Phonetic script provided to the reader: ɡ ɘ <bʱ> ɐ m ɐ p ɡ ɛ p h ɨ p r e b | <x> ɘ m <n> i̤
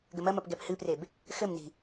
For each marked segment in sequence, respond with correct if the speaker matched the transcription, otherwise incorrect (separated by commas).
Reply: incorrect, correct, correct